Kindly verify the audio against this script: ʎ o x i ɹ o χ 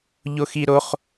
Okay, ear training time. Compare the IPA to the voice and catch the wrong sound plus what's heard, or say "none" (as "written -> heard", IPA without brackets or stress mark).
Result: ɹ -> ɾ